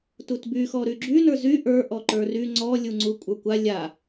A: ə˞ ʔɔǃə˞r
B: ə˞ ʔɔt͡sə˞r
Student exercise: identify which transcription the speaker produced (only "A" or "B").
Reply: A